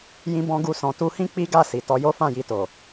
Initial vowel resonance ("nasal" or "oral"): nasal